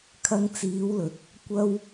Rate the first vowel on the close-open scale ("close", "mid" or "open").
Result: open